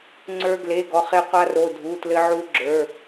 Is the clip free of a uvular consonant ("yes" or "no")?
no